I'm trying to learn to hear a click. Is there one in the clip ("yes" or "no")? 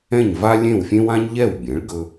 no